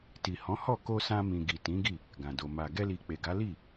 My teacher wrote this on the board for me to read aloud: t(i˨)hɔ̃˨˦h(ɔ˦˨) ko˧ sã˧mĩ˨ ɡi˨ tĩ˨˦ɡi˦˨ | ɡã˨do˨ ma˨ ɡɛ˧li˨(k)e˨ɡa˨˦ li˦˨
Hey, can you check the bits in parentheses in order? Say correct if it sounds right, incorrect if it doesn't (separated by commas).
correct, correct, incorrect